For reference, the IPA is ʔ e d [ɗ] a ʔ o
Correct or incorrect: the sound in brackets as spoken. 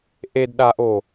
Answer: correct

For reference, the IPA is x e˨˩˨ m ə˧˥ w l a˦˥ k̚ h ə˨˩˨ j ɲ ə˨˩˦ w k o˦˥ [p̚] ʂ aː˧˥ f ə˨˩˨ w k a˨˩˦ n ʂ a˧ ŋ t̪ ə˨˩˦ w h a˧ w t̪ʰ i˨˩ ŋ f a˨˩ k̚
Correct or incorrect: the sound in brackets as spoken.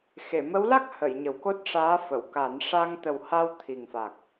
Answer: incorrect: t̚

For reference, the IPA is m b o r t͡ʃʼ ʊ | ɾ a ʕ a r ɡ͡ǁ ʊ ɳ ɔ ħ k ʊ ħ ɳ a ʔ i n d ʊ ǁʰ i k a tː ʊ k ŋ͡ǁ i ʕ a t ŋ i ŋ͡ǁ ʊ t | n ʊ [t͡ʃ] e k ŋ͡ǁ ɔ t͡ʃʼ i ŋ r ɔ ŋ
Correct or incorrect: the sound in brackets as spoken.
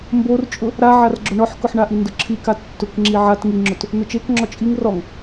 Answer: correct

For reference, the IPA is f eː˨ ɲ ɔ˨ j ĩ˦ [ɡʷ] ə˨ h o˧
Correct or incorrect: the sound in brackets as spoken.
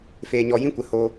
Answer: incorrect: kʷ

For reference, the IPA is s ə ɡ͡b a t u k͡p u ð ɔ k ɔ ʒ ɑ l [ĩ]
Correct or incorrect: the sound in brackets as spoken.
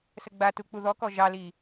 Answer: incorrect: i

